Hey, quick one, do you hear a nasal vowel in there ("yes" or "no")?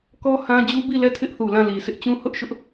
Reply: yes